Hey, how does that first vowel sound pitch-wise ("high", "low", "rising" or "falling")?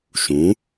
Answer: rising